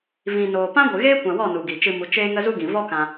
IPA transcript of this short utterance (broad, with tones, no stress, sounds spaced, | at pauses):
v ĩ˨ n oː˨ p ã˦ ɡʷ ɨ˨ ɣ eː˦ kʷ ã˨ w ɔ˦˨ n u˨ ɡ i˨ t͡ʃ ɨ˧ m u˨˦ t͡ʃ eː˦ ŋ ə˦ z u˦ ɡ ĩ˨ v ɔ˦ k ã˧